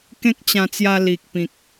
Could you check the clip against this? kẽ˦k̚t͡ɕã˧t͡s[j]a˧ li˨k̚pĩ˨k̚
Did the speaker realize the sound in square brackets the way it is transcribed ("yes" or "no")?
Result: yes